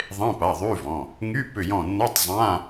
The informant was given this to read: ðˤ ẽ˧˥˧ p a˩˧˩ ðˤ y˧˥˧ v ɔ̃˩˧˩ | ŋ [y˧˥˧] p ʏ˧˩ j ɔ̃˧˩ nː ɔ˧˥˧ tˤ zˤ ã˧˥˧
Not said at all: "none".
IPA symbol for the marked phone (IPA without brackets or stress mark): y˧˥˧